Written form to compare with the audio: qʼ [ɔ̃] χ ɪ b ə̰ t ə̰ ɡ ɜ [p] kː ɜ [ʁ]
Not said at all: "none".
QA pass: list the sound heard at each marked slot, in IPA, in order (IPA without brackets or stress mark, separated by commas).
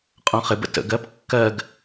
ɔ̃, p, ɡ